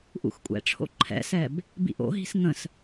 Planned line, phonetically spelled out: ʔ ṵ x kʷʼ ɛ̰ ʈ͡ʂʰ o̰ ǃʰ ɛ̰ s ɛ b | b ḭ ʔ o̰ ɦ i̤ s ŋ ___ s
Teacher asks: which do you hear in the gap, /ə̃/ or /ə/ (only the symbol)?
ə̃